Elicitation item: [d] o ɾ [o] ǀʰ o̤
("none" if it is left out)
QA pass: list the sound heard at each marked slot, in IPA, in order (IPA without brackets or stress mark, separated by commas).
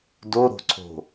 d, o̤